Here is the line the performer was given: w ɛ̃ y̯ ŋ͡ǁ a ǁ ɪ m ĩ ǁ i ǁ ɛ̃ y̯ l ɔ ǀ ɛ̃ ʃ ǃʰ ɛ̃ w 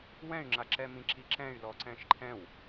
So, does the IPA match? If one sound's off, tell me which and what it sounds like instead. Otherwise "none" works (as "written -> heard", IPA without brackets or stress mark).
ɪ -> ɛ